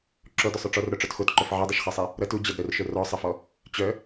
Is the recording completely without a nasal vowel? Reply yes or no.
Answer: yes